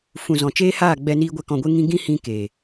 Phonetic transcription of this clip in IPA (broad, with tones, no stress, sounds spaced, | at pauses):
f ũ˨ z ɔ̃˨ t͡ʃ eː˦ h aː˦˨ ɡ͡b ɛ˧ n iː˧ ɡʷ ɛ˧ k ɔ̃˧ ɡʷ e˦ ŋ ĩ˦ ɡ ĩ˦ h ĩ˧ k eː˨